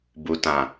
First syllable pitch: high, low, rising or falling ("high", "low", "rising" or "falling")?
low